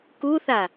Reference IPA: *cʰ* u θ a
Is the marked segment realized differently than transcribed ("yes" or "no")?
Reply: yes